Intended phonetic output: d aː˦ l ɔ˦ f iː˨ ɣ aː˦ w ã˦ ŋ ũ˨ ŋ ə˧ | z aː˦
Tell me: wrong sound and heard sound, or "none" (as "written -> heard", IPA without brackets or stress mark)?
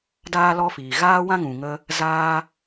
none